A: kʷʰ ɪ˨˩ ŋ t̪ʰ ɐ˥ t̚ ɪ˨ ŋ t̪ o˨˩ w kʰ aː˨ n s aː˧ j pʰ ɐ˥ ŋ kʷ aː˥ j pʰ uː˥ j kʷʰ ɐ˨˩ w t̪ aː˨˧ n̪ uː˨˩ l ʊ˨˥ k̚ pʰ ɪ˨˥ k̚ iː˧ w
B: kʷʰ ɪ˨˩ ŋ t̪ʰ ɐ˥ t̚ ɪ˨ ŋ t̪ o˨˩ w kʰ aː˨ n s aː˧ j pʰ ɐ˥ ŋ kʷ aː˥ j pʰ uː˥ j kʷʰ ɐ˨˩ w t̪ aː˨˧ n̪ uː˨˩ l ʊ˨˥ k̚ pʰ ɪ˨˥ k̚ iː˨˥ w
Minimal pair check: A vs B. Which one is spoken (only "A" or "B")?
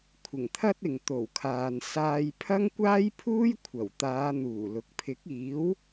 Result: B